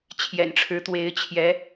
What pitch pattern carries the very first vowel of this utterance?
low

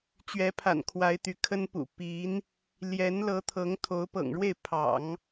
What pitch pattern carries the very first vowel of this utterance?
rising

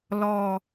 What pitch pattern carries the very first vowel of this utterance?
low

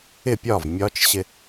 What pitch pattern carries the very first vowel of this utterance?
falling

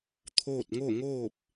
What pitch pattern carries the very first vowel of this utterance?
falling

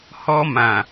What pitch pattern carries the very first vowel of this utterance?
high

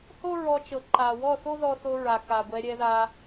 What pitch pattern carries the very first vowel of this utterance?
high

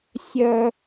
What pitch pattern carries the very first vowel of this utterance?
high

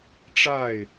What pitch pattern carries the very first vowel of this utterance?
falling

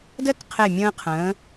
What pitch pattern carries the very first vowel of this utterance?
high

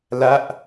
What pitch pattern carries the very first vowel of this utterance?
falling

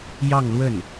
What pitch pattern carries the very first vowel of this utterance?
falling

